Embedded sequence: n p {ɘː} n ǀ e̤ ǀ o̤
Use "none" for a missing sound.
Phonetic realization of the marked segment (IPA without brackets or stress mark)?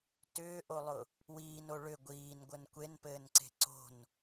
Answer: ɘː